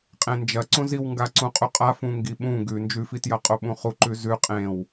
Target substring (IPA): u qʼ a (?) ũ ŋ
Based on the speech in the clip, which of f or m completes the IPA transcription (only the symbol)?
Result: f